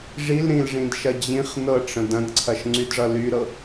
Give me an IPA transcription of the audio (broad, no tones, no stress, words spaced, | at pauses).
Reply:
ʐil ɾĩlʐĩdʃɐ d͡ʑĩχ nɤʈ͡ʂə̃ dɐ̃dǀʰɐʃŋ͡ǀydʐʌ lyɾɤ